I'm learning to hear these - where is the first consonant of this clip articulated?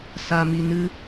tongue tip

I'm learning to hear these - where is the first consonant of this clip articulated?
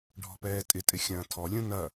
retroflex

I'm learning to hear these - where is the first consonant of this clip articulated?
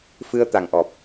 lips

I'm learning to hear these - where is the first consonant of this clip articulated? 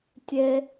tongue tip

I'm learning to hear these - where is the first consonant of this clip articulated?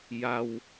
palate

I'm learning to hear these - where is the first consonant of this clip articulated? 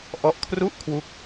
throat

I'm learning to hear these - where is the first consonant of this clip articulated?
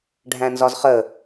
retroflex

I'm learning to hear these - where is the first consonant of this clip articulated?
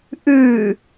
throat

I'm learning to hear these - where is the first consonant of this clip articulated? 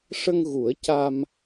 retroflex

